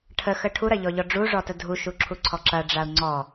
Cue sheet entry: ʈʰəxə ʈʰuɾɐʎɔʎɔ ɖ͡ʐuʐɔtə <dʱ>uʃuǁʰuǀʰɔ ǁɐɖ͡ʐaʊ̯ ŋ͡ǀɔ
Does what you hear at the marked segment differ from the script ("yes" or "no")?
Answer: no